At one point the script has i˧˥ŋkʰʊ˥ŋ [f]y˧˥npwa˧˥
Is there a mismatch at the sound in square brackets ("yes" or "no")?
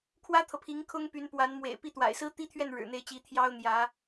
yes